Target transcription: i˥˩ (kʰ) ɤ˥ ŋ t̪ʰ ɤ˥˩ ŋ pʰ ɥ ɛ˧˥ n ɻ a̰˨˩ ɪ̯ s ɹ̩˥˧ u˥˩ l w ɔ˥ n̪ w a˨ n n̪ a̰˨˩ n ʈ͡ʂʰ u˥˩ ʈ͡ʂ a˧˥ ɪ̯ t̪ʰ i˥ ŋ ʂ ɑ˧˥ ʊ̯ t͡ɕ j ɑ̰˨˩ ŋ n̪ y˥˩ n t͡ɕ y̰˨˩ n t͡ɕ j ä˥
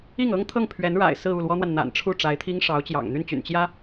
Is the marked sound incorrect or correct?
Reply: incorrect